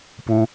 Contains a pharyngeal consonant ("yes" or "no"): no